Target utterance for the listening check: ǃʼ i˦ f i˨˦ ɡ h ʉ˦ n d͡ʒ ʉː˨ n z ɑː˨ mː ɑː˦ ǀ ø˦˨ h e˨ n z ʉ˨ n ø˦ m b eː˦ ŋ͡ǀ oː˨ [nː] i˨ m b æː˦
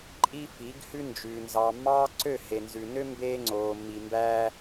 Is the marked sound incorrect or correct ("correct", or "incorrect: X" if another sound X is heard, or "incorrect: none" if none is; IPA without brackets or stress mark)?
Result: incorrect: mː